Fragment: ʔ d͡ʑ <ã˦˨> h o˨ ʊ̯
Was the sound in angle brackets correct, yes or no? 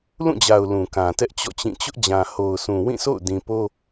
no